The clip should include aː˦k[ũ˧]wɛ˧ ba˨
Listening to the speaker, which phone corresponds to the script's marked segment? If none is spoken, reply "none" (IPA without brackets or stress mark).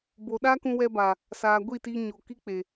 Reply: ũ˧